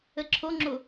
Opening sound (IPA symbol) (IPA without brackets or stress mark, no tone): ə